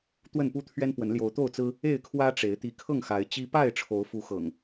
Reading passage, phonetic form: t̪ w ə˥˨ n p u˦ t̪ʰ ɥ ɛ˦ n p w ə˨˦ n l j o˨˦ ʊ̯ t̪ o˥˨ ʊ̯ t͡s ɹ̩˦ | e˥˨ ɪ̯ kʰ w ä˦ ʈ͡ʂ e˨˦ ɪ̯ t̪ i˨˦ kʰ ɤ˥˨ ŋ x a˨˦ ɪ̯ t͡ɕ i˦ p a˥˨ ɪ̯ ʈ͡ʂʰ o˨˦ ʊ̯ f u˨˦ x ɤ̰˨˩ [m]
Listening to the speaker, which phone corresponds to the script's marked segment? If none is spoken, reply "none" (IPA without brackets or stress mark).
ŋ